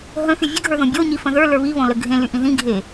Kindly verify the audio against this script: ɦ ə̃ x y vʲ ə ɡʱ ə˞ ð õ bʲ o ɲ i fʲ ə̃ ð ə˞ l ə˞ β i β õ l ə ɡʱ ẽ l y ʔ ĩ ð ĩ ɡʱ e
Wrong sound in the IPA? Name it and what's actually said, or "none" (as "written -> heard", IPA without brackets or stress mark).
fʲ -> f